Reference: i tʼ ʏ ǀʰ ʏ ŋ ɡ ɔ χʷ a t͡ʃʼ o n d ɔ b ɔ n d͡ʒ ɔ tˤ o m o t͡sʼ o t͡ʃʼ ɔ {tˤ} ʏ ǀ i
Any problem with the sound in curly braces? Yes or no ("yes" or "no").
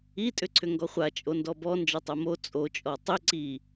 no